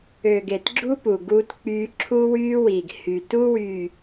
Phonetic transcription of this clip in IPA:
ø˨ ɡ e˨ t ɡ͡ǁ u˦ p u˨ ɡ uː˦ t k͡p yː˦ ǁʰ u˦ w yː˦ w iː˨ ɡ h y˨ t u˦ w yː˨

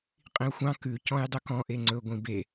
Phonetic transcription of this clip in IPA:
qʼ ĩ u̯ xʷ ɑ̃ k ʉ c ɔ̃ j dˤ ɵ k ɔ̃ ʔ e ŋ͡ǀ ɵ ɡʷ ĩ b e

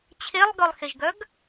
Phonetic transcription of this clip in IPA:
t͡ɕʰ e lˠ ɡ œ lˠ x e ʒ ɡ œ ɡ

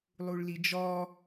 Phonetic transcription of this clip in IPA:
lˠ u ɭ l i d͡ʒ ɔ

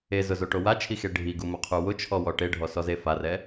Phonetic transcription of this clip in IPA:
e z ʊ z o ʈ o w a t͡ʃʰ i x e ɖʱ i ɡ u m ʊ qʰ u w ʊ t͡ʃʰ ɔ w ɔ ʈ e ɖʱ ɔ s ɔ z e f a r ɛ

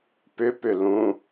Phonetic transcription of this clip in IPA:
p ʏ p ʏ l ũ

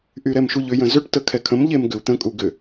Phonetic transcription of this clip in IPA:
ʔ y ɾ ɛ m ʃ u ʎ ʏ j ə̃ z ʏ ʈ t ə kʰ ɛ kʰ ə̃ m ʎ e m ɡ ʏ u̯ t̪ ə̃ kʼ u ɡ ʏ

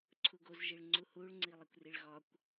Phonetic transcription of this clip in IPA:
ǀʰ u ɡ o z ʒ i ɭ ŋ͡ǀ u h u ɭ ŋ͡ǀ i lˠ i kʷ r i ɭ ɣ ɒ kʷ

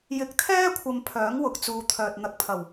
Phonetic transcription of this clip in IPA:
j ɪ˨ k̚ t̪ʰ ɛː˥ kʷʰ ɐ˧ m pʰ œː˨˥ ŋ w ʊ˨ k̚ t͡s uː˨ t̪ʰ œː˨ t̚ n̪ ɐ˨˥ k̚ pʰ ɐ˨˩ w

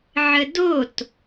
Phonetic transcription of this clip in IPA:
ʕ ə d o t

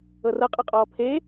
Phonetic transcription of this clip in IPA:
ɤ r ɤ qʼ ɤ qʼ ɔː pʰ e

